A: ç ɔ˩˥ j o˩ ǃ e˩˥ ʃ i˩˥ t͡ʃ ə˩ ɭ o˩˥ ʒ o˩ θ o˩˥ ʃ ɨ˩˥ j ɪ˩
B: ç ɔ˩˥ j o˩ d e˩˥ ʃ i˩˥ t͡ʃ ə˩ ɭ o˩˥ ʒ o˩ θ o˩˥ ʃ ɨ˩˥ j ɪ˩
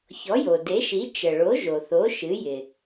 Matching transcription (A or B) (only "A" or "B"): B